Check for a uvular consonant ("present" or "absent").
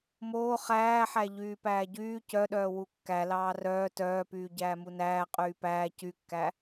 present